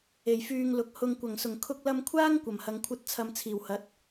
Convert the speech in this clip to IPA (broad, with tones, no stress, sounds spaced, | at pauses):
e˨˩ j f yː˧ ŋ l ʊ˨ k̚ h ʊ˧ ŋ kʷ ɐ˨˩ ŋ s ʊ˨˩ ŋ kʰ ʊ˧ k̚ l ɐ˧ m kʷʰ aː˥ ŋ kʷ ɐ˨˩ m h ɐ˨˧ ŋ kʷʰ ɐ˥ t̚ t͡sʰ ɐ˧ m t͡sʰ iː˨˩ w h ɐ˨˥ t̚